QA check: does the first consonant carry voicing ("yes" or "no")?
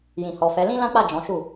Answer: yes